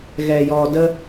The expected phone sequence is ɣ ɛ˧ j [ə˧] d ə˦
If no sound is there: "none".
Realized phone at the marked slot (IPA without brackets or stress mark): ɔ˧